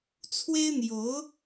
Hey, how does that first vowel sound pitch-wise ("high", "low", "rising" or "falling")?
high